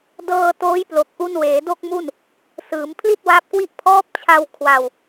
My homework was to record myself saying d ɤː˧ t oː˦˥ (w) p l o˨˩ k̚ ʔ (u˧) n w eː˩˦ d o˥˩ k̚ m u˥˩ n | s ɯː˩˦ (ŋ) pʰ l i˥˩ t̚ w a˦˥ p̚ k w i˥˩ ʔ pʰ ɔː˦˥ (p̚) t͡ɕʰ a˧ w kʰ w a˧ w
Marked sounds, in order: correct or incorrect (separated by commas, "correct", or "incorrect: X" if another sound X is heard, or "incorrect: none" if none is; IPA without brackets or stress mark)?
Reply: incorrect: j, correct, incorrect: m, correct